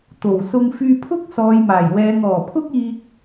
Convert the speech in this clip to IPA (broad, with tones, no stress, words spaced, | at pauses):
t̪o˨˩wsʊ˧ŋ fyː˧pʰʊ˥k̚sɔː˨jmaː˨˩j wɛː˨ŋɔː˨˩pʰʊ˥k̚iː˧k̚